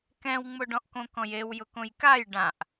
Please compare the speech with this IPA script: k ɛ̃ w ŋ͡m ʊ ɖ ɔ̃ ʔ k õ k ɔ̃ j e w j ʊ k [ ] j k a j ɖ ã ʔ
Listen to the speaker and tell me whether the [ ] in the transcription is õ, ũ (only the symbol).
õ